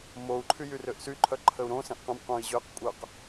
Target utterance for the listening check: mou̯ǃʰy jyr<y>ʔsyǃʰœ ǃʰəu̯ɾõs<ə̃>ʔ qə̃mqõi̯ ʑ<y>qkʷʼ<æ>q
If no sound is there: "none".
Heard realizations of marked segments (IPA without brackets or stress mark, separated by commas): ø, ə̃, ø, œ